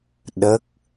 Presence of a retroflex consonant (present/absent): absent